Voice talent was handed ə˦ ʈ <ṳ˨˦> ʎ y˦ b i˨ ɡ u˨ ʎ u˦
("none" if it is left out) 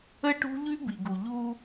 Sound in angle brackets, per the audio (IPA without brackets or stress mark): ṳ˦